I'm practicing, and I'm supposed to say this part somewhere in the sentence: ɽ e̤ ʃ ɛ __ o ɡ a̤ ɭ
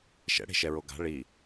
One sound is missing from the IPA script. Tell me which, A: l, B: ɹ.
B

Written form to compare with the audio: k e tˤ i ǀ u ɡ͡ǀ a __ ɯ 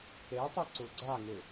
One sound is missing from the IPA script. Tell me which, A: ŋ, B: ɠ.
A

